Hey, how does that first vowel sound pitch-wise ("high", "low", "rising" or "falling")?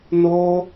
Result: high